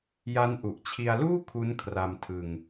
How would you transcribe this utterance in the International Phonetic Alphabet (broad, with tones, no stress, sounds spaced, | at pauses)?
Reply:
j a˦˥ n ʔ u˨˩ ʔ t͡ɕʰ i˧ a̯ l uː˥˩ kʰ u˦˥ n kʰ r a˧ m tʰ ɯ˧ ŋ